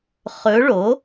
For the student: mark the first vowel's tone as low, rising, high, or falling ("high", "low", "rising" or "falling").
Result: rising